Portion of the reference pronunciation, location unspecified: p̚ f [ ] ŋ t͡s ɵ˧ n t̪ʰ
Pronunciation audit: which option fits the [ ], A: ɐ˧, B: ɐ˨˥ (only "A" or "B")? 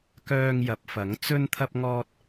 B